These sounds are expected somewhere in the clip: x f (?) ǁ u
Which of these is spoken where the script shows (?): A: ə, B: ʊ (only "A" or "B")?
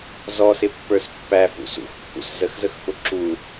B